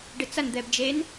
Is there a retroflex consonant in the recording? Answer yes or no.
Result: yes